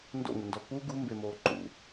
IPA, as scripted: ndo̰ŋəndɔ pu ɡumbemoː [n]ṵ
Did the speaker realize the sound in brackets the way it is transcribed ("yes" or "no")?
no